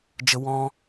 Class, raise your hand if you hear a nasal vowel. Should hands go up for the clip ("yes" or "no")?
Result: yes